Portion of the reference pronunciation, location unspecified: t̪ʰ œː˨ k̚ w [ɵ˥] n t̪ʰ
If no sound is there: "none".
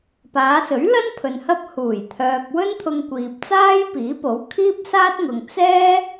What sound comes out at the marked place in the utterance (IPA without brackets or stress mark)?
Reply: ɵ˥